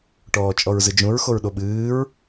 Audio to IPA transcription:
ʈ ɔː t͡ʃʼ ɔ ɹ z ɨ d͡ʒ ũ ɹ x o ɹ ɗ o ɓ ɨː ɹ

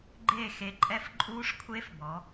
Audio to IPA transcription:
ɡ͡ǃ eː˥˨ x e˧ ǃʼ ɛ˦˥ f ǃʼ uː˦˥ ʂ kʷʰ e˦˥ f b ɔ˩˧

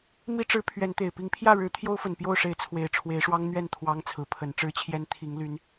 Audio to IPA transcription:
m i˦ ʈ͡ʂ ɻ̩˨˦ pʰ ɥ ɛ˨˦ n t̪ e˨˩ ɪ̯ p i˨˦ ŋ pʰ j ä˥˨ ɻ ɻ̩˨˦ t̪ʰ j o˦ ʊ̯ f ə˨˩ n p j o˥˨ ʊ̯ ʂ e˨˦ ɪ̯ t͡sʰ w e˨˩ ɪ̯ ʈ͡ʂʰ w e˨˦ ɪ̯ ʂ w ɑ˦ ŋ n̪ ɥ ɛ˥˨ n t̪ʰ w ɑ˦ ŋ t͡sʰ ɹ̩˨˦ pʰ ə˨˦ n ʈ͡ʂ ɻ̩˦ t͡ɕʰ j ɛ˦ n t̪ʰ i˨˦ ŋ l y˨˦ n

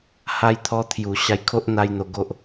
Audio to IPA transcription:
h a˧ j t̪ʰ ɔ˧ t̪ʰ j u˨˩ ɕ a˧ j kʰ o˦ ʔ n̪ a˦ j n̪ o˧ ɡ o˦ ʔ

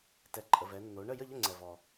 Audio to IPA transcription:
t ɛ˩˧ ǃʼ ə˩ v ɛ˩˧ nː o˩˧ ɳ ə˥˨ j ə˥˨ ʎ ə˥˨ ŋ͡ǀ ɛ˩ v ɔ˩

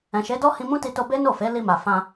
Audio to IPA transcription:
ɛ̃˨ ʃ e˨˦ d ɔ˦ h ĩ˧ m ũ˦ t i˧ t o˧ b e˦ n o˦˨ f e˨˦ l i˧ m a˨ f ã˧

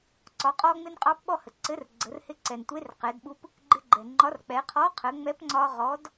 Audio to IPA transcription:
ǀ ɒ˩˧ qʼ ɔ˧ ŋ͡m ɪ˧ n qʼ ɑ˧ p ɓ ɔ˧ h ə˩ ǀ ɘ˨˥ r ɡ͡ǀ ə˩˧ r h ɪ˨˥ ǀ ɛ˩ n tʷ e˨˥ r q ɛ˩˧ d ɓ u˧ p | ɡ͡ǃ ɪ˧ ɡ͡ǃ ɛ˩ ŋ͡ǃ ɒ˨˥ r k͡p ɛ˩˧ qʰ ɔ˨˥ qʰ ə˩˧ ŋ͡m ɛ˨˥ p ŋ͡ǀ ɒ˧ ʁ ɔ˨˥ d

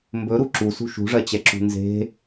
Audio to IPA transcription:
m b ɵ ɾ u ǁ u s ṳ ʃ ṳ ʐ ɜ t͡ɕ ɛ ǁ ṳ n z e̤

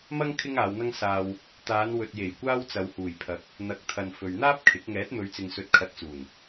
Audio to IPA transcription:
m ɐ˥ ŋ kʰ ɪ˥ ŋ aː˨˧ w n̪ ɐ˥ ŋ s aː˨ w | t̪ aː˨˧ n w ɵ˨ t̚ j e˨˩ j kʷ aː˥ w t͡s ɐ˨ w h uː˨˩ j pʰ ɐ˨˥ k̚ | n̪ ɐ˨˥ k̚ t̪ʰ ɐ˨ n f ɵ˨ ɥ n̪ aː˥ p̚ kʰ ɪ˨˥ k̚ ŋ ɛː˨˥ t̚ m ɵ˨˧ ɥ t͡s ɪ˨ ŋ s ɵ˨ t̚ kʰ ɐ˧ t̚ t͡s uː˨˩ n

